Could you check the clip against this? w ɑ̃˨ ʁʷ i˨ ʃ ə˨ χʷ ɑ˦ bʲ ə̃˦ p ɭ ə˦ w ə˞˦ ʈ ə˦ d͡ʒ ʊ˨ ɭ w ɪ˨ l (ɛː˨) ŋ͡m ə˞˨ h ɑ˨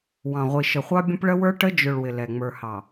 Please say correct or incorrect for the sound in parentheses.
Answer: incorrect